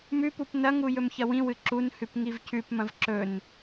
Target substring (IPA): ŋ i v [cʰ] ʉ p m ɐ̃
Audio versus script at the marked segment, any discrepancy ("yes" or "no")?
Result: no